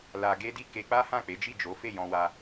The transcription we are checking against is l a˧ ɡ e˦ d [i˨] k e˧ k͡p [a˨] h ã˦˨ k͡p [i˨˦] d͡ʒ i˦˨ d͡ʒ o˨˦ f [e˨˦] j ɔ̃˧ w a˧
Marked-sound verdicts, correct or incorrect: incorrect: i˦˨, incorrect: a˦, incorrect: e˨˦, incorrect: e˦˨

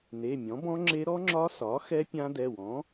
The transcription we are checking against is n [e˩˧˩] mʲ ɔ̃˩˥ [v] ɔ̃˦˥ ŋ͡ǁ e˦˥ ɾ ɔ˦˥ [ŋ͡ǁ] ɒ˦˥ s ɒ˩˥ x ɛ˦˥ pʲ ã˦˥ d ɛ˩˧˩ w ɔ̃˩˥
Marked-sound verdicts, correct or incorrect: correct, incorrect: b, correct

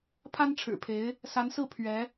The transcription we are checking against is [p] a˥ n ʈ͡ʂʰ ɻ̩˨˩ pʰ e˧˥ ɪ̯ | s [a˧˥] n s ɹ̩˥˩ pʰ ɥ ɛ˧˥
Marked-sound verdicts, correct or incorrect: incorrect: pʰ, correct

